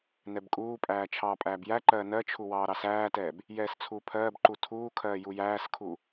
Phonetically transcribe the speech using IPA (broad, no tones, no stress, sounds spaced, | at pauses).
n ɛ b kʼ uː pʼ æː t͡ʃʰ ɑː pʼ æː b j æ ǃ ɜː n ɜ t͡ʃʰ u w ɑː ɾ ɑ s æː t ɛː b | j ɛː s t͡sʰ uː pʰ ɜː b ǃ u tʰ uː kʰ ɜː j u j æː s kʰ u